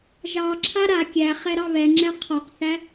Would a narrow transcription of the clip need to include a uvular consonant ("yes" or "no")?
yes